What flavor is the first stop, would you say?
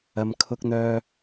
aspirated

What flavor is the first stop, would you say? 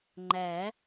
click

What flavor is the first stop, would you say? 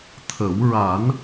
aspirated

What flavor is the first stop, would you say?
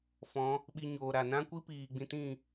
implosive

